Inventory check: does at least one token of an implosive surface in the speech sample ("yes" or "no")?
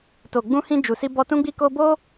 no